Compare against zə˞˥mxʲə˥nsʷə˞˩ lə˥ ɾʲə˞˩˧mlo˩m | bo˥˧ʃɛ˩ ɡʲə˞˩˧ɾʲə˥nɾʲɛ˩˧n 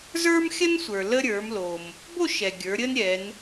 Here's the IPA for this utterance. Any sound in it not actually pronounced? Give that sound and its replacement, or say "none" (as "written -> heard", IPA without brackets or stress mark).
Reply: none